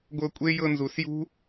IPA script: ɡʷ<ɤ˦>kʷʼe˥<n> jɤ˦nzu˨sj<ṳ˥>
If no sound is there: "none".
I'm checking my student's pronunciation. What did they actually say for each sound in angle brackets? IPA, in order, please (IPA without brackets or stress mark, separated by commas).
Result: ɤ˦, none, ṳ˥